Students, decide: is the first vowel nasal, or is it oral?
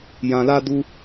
nasal